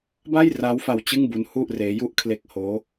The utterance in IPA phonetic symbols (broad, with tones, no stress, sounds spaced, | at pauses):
b a˥˩ j r a˦˥ w f a˧ w t͡ɕ ɯ˥˩ ŋ b u˦˥ n h u˥˩ ʔ r eː˦˥ j u˦˥ ʔ kʰ l e˦˥ k̚ h oː˦˥